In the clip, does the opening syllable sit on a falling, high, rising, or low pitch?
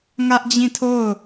high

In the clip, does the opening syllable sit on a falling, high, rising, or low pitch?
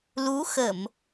rising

